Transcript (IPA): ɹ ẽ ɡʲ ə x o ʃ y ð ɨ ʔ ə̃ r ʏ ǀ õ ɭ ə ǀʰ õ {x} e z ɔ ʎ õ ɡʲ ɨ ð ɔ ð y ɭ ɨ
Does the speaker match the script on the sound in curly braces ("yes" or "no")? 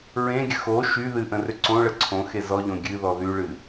yes